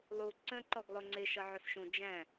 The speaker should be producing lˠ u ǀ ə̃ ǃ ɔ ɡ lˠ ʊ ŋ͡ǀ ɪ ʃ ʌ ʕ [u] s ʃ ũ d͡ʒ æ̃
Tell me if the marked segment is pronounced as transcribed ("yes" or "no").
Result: no